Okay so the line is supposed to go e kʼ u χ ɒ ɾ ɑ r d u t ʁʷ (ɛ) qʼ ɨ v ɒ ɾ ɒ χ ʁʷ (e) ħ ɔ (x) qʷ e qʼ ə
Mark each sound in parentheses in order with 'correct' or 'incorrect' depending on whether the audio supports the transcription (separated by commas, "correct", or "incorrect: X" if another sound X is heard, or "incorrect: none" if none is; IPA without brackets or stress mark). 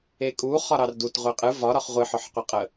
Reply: incorrect: e, incorrect: ɨ, incorrect: ħ